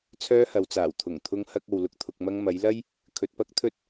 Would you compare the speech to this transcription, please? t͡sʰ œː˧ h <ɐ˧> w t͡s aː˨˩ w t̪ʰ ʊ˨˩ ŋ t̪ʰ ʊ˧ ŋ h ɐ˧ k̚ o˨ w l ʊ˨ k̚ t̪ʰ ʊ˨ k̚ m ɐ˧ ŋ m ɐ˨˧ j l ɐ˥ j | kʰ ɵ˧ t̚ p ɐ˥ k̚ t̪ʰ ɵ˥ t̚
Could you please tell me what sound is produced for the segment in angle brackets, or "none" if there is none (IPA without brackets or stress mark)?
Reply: ɐ˨